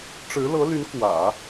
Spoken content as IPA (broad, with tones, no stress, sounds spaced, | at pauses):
ʈ͡ʂ ɻ̩˧˥ l ɤ˧˥ l y˧˥ n k w ä̰˨˩˦